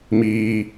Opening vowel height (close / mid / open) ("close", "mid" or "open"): close